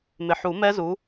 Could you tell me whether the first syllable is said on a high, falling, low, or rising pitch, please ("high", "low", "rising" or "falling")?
low